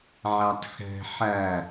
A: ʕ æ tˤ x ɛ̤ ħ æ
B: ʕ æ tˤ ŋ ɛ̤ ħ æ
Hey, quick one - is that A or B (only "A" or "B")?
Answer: A